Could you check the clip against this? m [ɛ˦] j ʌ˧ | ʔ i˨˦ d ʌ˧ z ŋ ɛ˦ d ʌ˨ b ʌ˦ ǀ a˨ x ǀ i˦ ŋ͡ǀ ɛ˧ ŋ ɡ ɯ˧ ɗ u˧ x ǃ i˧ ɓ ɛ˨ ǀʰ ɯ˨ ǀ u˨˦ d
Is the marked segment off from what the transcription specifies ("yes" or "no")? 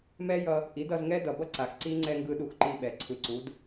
no